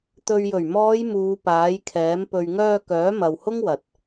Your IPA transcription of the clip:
t̪ ɵ˨ ɥ j ɵ˨˩ ɥ m ɔː˨˧ j m uː˨˧ p aː˨˥ j kʰ ɛː˨˥ m p ɵ˨ ɥ ŋ œː˧ k œː˨˥ m ɐ˨ w h ʊ˥ ŋ w ɐ˨ t̚

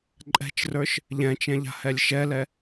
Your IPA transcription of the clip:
ǃʼ ɛ̤ t͡ʃ r ə˞ ʃ | ʎ ɛ̃ t͡ʃ ɛ̃ ʎ a̤ h ɛ lʲ ʃ ɛ l ɛ

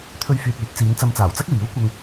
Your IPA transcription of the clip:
t̪ʰ ɵ˧ ɥ f yː˨ t̚ yː˨˥ t̚ t͡s iː˨˧ n t͡s ɐ˧ m t͡s aː˨˩ w t͡s ɐ˥ k̚ w iː˨˥ w kʷ ɐ˧ ŋ

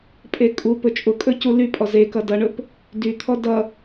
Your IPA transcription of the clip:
pʼ e kʼ u p ɵ t͡ʃʼ ʊ kʼ ɵ c u l y pʼ ɔ z e k ʌ d ʌ ɳ ɵ p | d y t̪ʰ ɔ d ʌ

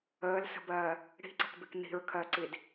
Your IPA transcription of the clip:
əː l s ə̤ b ɜː | ɽ i̤ ǀ ə̤ k b ɪ k n̪ i̤ ɹ kʰ ɜ ǀ i d

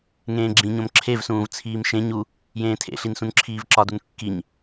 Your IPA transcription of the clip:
ŋ ẽː ɡ͡ǁ ĩ ɲ õ m ǁʰ e v s ũː v t͡sʰ iː m ʃ ẽ ɲ u | j ẽː tʰ ḛ ɬ i n s ũ n ǁʰ iː v ǁ ɒ d u n kː i ɲ

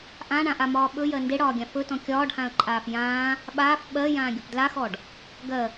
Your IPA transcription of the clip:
ʔ ã ɳ ã ʔ a m ɒː ɓ ɵ j ɜ n d e ɽ ɒː ɡʲ ã f ɵ t ɔ̃ kʲ ɒː ɖ h ã ə̯ ǃʼ aː f j ãː | ɓ aː f ɓ ɜ j ãː ɡʲ ɵ p d l a x ɔ ɖ | ɡ ɜ

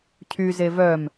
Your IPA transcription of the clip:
cʰ y z e v œ m

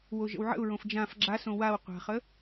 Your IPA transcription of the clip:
w o ʒ ə̰ w ʕ ə̰ ʊ̯ ɹ õ f d͡ʒ ã f ɡ͡ǁ a s õ w a w qʷ a̤ χ ə

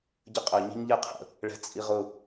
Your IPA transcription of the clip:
ɟ ə qʼ ə ɲ i̤ ɲ ʎ ɛ qʰ ə̰ | ɭ ɛ̤ t͡sʼ i ʁ ʊ

